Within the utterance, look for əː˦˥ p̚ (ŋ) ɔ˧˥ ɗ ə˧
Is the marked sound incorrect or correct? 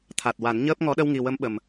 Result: correct